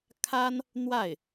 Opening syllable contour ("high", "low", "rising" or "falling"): high